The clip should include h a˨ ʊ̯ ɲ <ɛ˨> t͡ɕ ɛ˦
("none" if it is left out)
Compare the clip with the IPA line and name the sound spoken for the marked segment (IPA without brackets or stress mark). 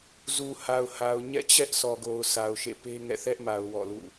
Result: ɛ̰˦˨